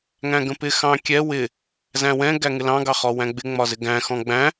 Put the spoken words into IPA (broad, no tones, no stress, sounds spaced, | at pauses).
ŋ æ̃ ɡ ə̃ p ɪ x ɑ̃ kʲ ɛ w ɪ | z æ̃ w ɛ̃ ɡ æ ŋ ɪ l ɑ̃ ɡ ɑ χ ɔ w æ̃ ɡ͡b ɪ ŋ͡m ɒ z ɪ ɡ æ̃ x ɔ̃ ɡ͡b æ̃